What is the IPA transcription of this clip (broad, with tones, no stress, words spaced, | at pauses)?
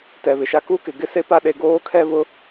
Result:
tɛ˨βɪ˨ʃa˦ ku˦kɪ˨ ɡɪ˦se˦pa˦ ɗe˦ ɡoː˦kʰɛ˦βʊ˦